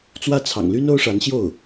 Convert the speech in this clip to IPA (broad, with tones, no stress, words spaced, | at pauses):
t͡swä˥ t͡sʰɑ̰˨˩ŋly˥n o˥ʊ̯ʂa˧˥nɕjo˥˩ʊ̯